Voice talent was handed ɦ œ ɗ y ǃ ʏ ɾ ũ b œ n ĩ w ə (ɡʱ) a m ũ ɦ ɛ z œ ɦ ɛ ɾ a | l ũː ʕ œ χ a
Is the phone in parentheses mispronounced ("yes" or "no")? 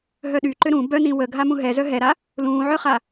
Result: no